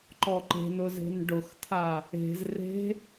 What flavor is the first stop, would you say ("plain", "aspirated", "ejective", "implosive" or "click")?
click